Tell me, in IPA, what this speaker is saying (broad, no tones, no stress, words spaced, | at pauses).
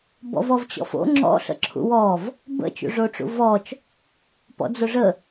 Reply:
bɔ̰vɔvt͡ɕɔ̰fo̰ ŋ͡ǁɔ̰ɬə̰ǁʰṵ wɔv | bə̰t͡ʃṵʐoʈ͡ʂṵ vɔt͡ʃ | pɔ̰d͡zoʐə